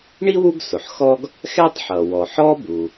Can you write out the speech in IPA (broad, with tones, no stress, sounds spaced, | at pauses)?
ɳ i˥ w u˥ ɡ s ʊ˩ ħ x ɔ˥ ɡ | x ɛ˥ tˤ ħ ʌ˩ w ɔ˩ ħ ɔ˥ b u˩